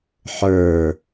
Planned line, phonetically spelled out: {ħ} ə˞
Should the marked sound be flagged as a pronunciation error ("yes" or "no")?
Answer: no